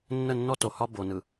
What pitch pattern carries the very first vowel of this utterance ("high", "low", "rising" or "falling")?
falling